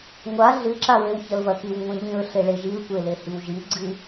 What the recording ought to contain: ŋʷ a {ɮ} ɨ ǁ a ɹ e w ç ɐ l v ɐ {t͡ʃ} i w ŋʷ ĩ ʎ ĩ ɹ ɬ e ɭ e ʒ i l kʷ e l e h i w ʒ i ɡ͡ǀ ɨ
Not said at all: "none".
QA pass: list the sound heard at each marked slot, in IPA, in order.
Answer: ɮ, k

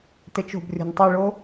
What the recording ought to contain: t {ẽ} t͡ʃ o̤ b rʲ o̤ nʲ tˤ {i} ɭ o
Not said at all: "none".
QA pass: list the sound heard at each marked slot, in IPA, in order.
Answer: e, i

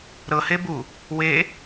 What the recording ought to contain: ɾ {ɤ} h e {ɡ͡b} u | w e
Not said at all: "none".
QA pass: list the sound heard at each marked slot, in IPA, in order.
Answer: ɤ, b

